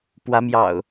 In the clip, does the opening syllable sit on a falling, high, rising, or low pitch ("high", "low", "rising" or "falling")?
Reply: rising